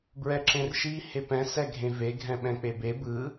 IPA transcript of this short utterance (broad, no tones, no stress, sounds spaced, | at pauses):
b ɹ ɛ ǁ ẽ r ʃ i h e p ɛ̃ s ɛ ɡʱ ẽ v e ɡʱ ɛ̃ ɓ ɛ̃ k͡p e b e b ɯ